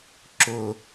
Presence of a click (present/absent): present